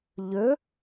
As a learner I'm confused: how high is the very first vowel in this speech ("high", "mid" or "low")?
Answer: mid